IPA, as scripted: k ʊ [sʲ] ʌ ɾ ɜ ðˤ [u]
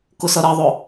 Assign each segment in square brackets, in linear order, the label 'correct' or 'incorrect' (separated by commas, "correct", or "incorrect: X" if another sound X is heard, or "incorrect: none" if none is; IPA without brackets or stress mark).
incorrect: s, incorrect: ʊ